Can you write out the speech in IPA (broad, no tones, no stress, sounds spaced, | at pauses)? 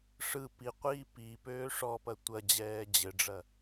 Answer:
ʂ ɯ p i qʷ iː p i p øː ʂ ɔ p ɐ tʷ ɐ d͡ʑ ɛː d͡ʑ ɘ ɖ͡ʐ ɐ